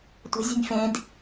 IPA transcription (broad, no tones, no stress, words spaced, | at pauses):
tʷə̤zʲə̤nʲ fẽd